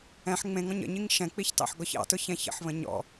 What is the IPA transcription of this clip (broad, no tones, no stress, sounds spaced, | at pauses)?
ɛ̃ ħ ŋ͡m ẽ ŋ ɔ̃ ɲ ə̰ ɲ i ŋ ʃ ɛ̃ k͡p i ç t ɑ̰ ħ ɡ ɔ ç ɑ̰ t ʊ ç ɛ̃ ç ə̰ ħ β ə̃ ɲ ɔ̰